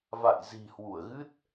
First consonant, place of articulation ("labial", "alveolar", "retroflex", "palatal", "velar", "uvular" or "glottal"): labial